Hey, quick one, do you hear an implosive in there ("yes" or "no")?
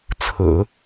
no